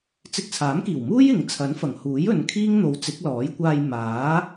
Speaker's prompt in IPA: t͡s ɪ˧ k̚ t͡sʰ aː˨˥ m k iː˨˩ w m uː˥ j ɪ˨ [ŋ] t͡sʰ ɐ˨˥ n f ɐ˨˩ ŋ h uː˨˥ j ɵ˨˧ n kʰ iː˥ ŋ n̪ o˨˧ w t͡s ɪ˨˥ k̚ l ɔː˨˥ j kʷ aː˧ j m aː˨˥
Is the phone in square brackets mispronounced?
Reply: no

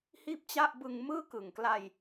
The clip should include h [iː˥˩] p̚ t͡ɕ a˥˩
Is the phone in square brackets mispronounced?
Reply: no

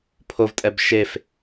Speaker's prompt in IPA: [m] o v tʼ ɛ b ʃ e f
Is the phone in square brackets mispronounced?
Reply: yes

